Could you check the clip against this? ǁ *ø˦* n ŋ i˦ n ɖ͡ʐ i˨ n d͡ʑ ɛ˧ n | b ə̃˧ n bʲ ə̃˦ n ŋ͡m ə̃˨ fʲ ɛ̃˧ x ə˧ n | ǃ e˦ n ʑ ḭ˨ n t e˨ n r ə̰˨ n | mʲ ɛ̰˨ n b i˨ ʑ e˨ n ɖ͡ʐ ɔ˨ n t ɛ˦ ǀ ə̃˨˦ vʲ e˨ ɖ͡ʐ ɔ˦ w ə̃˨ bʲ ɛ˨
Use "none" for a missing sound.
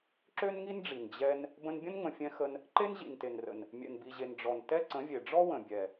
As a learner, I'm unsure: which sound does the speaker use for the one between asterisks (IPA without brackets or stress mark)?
ø˦